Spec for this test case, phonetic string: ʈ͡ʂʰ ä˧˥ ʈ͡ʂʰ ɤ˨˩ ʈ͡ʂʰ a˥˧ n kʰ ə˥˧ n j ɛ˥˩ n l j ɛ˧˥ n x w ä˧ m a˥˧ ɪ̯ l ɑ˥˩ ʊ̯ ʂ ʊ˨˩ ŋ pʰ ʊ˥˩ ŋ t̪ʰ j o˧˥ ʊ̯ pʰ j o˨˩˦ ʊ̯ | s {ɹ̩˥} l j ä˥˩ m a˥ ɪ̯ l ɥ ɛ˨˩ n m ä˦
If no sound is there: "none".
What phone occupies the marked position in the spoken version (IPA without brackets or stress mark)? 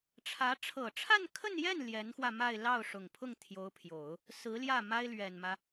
ɹ̩˧˥